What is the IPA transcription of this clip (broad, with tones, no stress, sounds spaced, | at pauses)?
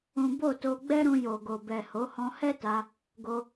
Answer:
ũ˦ b o˦˨ t o˧ ɡ͡b ɛ˦ ɾ ũ˧ j o˨ ɡ o˨ b ɛ˨ h o˨˦ h ɔ̃˧ h ɛ˦ t a˧ | ɡ o˧